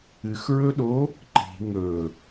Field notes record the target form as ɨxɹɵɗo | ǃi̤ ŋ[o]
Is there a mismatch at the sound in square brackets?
yes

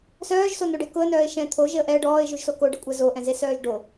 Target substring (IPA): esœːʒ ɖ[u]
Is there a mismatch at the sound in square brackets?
yes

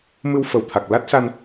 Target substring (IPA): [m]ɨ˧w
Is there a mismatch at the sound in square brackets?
no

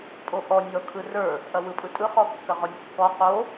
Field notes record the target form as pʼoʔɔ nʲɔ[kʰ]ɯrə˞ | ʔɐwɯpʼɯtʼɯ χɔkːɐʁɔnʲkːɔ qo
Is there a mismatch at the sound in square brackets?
no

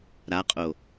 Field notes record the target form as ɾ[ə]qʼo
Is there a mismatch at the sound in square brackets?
yes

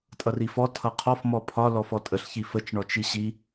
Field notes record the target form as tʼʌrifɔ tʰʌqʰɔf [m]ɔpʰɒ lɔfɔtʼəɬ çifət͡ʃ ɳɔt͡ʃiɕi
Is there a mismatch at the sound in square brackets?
no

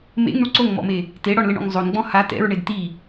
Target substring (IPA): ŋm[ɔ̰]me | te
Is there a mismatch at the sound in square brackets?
no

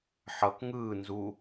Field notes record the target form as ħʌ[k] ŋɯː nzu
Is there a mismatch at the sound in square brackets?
no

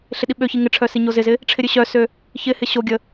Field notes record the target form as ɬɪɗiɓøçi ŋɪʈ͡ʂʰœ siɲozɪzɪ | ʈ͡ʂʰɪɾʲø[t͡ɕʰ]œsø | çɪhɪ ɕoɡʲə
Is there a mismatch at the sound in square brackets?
yes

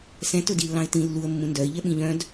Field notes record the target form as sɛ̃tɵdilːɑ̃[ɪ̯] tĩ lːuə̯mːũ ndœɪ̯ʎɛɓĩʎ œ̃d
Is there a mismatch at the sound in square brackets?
no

